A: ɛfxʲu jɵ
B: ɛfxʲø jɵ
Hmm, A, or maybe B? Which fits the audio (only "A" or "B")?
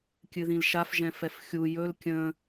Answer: A